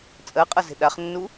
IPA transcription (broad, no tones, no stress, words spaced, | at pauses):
t͡sʼɜqʼʌze̤ ɗaχnːu